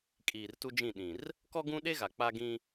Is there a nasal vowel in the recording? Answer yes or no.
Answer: yes